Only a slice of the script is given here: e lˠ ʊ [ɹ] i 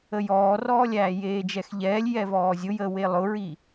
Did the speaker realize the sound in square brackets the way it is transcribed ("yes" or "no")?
yes